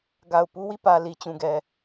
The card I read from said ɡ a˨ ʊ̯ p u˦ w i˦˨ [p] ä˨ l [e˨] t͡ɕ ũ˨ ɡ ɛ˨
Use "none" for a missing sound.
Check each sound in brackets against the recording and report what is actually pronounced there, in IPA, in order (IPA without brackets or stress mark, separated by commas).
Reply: p, i˨